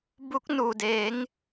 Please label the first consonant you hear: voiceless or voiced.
voiced